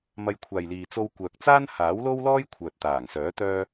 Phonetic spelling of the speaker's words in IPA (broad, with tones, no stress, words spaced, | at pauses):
mɐ˧jkʷʰaː˨jliː˨ t͡so˧w kʷœː˨k̚ t͡saː˥nhaː˨˥wlo˥wlɔː˥j kʷʰœː˨t̚t̪aː˨˩ŋsœː˨˥ t̪œː˥